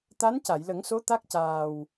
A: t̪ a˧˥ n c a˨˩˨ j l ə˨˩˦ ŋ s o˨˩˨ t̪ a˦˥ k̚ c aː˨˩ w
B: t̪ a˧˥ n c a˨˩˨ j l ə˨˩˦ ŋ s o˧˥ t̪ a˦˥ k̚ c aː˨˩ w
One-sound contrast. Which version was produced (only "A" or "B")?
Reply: B